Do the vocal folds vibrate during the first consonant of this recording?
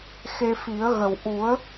no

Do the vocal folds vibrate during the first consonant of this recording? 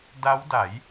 yes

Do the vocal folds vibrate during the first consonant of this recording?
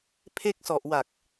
no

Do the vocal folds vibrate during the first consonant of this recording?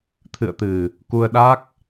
no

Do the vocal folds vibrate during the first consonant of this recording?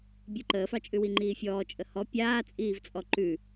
yes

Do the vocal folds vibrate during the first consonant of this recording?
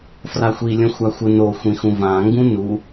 no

